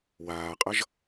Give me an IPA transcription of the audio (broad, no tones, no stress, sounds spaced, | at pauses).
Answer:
w aː qʼ ʌ ʒ